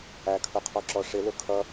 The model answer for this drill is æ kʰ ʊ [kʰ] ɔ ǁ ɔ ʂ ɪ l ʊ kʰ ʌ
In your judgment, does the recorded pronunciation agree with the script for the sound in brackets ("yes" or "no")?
no